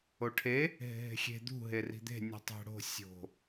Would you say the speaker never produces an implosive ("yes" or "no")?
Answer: yes